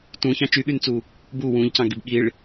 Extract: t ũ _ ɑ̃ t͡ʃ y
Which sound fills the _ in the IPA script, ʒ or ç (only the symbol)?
ç